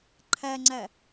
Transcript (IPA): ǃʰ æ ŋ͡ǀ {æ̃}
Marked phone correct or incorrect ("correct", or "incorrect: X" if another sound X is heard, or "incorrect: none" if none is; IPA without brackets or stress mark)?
incorrect: æ